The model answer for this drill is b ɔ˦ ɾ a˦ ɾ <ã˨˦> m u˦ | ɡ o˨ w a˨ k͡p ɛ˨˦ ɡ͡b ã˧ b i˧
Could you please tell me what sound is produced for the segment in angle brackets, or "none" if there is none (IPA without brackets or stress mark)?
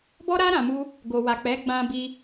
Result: ã˧